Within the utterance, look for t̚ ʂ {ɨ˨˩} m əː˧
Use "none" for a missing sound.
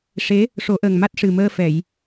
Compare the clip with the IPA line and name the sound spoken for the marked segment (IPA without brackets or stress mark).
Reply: ɨ˨˩